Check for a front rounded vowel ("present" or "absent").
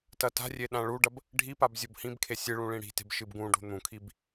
absent